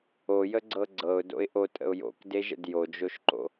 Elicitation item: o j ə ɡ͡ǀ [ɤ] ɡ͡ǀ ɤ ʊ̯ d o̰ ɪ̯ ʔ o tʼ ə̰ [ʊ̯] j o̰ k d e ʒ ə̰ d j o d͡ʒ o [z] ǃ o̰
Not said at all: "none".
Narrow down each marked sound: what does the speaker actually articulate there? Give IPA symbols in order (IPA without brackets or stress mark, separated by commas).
ɤ, ʊ̯, ʃ